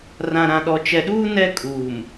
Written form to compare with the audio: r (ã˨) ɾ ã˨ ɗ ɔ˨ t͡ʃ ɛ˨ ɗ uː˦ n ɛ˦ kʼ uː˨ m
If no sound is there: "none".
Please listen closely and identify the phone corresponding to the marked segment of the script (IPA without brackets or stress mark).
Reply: ã˨